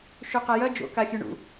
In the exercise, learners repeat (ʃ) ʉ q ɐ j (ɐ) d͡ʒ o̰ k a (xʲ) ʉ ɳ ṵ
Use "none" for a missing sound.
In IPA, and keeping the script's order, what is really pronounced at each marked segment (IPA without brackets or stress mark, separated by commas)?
ʃ, ɐ, xʲ